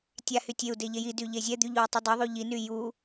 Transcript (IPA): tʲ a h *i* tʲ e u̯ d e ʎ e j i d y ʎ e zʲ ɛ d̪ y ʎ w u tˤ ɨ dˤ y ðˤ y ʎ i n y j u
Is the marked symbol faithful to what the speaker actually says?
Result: no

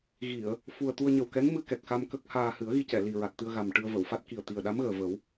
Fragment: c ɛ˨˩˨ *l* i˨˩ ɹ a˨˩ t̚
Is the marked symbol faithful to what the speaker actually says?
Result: yes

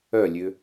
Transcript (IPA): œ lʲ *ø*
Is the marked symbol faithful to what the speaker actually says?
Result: yes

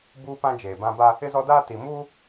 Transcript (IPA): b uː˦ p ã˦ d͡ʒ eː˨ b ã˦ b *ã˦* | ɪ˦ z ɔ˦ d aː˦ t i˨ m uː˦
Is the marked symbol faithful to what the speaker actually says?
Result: no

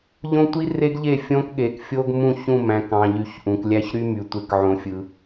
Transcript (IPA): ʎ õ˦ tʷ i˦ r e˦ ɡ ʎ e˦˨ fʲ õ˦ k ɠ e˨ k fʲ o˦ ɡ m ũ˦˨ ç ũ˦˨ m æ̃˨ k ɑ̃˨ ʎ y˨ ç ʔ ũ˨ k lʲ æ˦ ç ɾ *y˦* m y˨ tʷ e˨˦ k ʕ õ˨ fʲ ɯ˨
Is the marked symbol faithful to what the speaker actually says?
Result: yes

